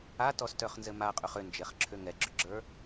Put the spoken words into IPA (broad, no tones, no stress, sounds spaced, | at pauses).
a t ɔ s t œ χ n z ɘ m a qʼ ʏ χ ʏ n d͡ʒ e χ ǁʰ ʏ ŋ ɛ ɡ͡ǁ ʏ ɡ͡ǁ ə˞